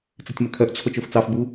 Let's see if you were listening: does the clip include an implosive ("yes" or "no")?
no